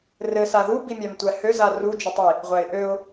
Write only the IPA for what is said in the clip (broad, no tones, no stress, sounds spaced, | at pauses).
r ɘ s a ð u b i mʲ a m tʷ æ h ø z a r u d͡ʒ ɘ tˤ i | ʁʷ æ ɪ̯ ʔ ø ʊ̯